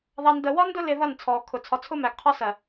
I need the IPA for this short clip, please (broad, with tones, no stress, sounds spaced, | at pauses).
ð ɑ˨ n d ə˨ w ɒ˦ n d ʊ˦ l ɪ˨ ð ʌ˦˨ n t͡sʰ ɔː˨ kʰ ʊ˨ t͡sʰ ɒ˨ t͡sʰ ʊ˦ m æ˨ ɡ qʰ ɒ˦ s ɜ˨